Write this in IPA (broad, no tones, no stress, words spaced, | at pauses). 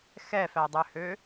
xɛfædˤøhø